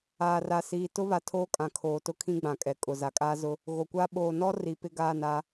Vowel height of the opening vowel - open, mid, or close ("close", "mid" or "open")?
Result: open